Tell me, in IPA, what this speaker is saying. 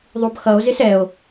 ðˤ u b x ʌ o̯ z ɪ s ɛ o̯

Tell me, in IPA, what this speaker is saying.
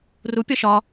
r u pʲ ɒ ʃ ɒ

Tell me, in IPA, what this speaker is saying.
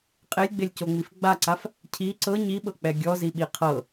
qʼ e lʲ ɡ͡b e lʲ c o ŋ͡m i f ɡ͡b a ǀ a f | cʰ i ǀ ɤ ɲ i ɓ ɤ k͡p ɛ ɡʲ ɔ z i ɓ i qʰ ɤ

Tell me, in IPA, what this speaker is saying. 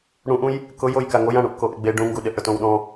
ɽ ũ ʔ ũ j | k ʊ j o j k a ŋ o j ã ɽ ũ ʔ k o ʔ ɪ ɡ͡b e ɖ ũ ŋ ɡ u ɗ ɪ ʔ ɽ ʊ t õ w ɗ ɔ̃

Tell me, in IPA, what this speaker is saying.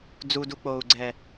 d͡z u d u k͡p oː u̯ ɡ͡ǀ ɛ

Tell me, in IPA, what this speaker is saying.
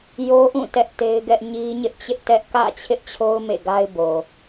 j o˦ ʔ ũ˦˨ t ɛ˦ ʔ t e˦ ɪ̯ ɡ ɛ˦ ʔ ɲ i˦ ɲ ɪ˦ ʔ t͡ɕ ɪ˦ ʔ t ɛ˦ ʔ k ä̰˦˨ t͡ɕʰ ɪ˦ ʔ t͡ɕʰ o˦ ʊ̯ m ḛ˦˨ ɡ a˦ ɪ̯ b o˨

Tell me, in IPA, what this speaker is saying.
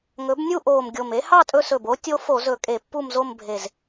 ŋ ɵ˩˥ b nʲ u˥˨ ʔ oː˨˩ m ɡʲ o˨˩ m e˧˥ h ɑ˥˨ tʼ ɵ˧ s ɵ˨˩ b o˧˥ tʲ o˧˥ f o˧˩˧ z ɵ˧˩˧ kʼ e˧˩˧ pː u˥˨ m z o˥˨ m bʱ e˨˩ z

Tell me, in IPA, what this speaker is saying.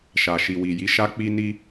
ʃ a˨ ʃ i˨ w i˨ j i˨˦ ʃ a˧ k͡p i˧ n i˧

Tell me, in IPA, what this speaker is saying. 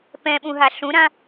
p ɛ̃ ɓ ũ ɦ a ɬ ũ ɾ ã

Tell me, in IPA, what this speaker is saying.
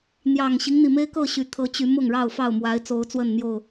n̪ j ɑ˨˩ ŋ ɕ i˦ ŋ n̪ i˨˩ m e˦ ɪ̯ k ɤ˥˨ ɕ y˨˩ t̪ʰ ɤ˨˦ t͡ɕ y˨˦ m ʊ˥˨ ŋ ɻ ɑ˥˨ ʊ̯ f ɑ˥˨ ʊ̯ m w a˨˦ ɪ̯ t͡s o˨˦ ʊ̯ t͡s w ə˥˨ n n̪ j o˥˨ ʊ̯

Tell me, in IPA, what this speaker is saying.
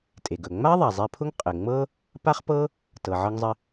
tʼ e˩ ɡ ɵ˩ ŋ͡m a˥ ðˤ a˩ zˤ e˧ pʰ ʊ˥ ŋ qʼ ɘ˩ ŋ͡m ɤ˥ | p a˥ χ p ɤ˥ | t ɤ˩ ʕ ɤ˧ ŋ zˤ ɘ˧

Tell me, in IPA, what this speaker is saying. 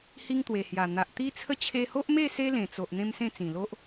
h i˦ ŋ t̪ w e˨˩ h j a˨˩ n̪ a˨ ʔ t̪ i˦ t͡sʰ ə˥˧ t͡ɕʰ e˧ h o˦ ʔ m e˥˧ s e˦ l ẽ˨˩ t͡s o˨ ʔ n̪ ẽ˦ m s ẽ˥˧ t͡s ĩ˨˩ l o˦ ʔ

